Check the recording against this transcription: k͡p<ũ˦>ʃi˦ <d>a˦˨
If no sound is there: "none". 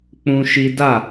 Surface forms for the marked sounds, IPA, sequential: ũ˦, d

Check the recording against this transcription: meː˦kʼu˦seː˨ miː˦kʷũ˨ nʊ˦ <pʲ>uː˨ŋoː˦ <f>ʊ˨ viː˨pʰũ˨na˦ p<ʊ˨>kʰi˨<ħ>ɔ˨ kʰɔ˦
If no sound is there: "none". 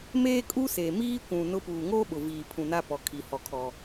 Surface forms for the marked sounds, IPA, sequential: p, ɓ, ɔ˨, h

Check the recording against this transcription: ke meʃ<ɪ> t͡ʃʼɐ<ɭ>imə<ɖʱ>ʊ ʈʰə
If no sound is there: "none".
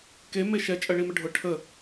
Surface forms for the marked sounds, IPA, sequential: ɛ, ɭ, ɖʱ

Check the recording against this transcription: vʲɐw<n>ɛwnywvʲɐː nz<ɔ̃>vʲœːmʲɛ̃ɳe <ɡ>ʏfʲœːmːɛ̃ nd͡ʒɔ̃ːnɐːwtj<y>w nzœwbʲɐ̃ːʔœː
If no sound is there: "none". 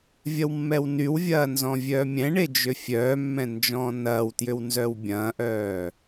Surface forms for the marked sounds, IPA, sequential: mː, ɔ̃, d͡ʒ, ʏ

